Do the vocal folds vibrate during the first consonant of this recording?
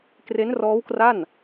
no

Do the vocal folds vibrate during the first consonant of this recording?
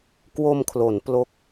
no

